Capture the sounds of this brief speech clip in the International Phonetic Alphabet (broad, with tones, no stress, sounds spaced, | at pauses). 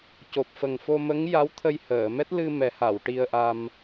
c o˨˩ p̚ f ə˨˩ ŋ f o˧ m ə˧˥ ŋ j a˧˥ w t̪ʰ ə˧ j h əː˨˩˨ m ɛ˦˥ t̚ l ɨ˧ m ɛ˨˩˦ h a˨˩˨ w ʈ i˧ ə̯ ʔ a˧ m